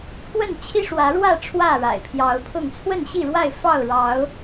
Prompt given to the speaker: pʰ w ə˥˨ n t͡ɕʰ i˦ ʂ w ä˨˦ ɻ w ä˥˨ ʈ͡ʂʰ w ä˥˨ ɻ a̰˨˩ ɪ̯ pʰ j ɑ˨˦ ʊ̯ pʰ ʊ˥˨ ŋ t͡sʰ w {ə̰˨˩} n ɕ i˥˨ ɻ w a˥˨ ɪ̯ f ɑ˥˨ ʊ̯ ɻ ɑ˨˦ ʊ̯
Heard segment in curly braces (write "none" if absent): ə˥˨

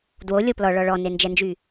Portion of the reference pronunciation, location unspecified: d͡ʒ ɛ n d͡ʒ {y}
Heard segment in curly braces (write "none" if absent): y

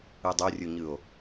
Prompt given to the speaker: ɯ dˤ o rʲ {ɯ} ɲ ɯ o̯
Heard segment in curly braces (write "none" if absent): u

